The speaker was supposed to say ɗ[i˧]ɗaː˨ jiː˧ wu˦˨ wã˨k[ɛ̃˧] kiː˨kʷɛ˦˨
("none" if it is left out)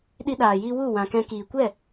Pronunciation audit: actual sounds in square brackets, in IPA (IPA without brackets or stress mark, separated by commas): i˧, ɛ̃˧